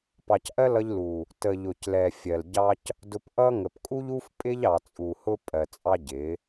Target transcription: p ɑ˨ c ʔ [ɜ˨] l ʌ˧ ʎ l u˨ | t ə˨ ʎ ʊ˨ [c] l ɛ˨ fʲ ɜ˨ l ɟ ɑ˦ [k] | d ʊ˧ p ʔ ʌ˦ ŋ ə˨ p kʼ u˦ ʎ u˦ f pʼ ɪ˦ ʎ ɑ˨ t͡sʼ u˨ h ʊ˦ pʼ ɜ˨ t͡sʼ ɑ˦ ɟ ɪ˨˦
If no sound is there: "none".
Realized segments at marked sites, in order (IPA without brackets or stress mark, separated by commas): ɜ˦, c, c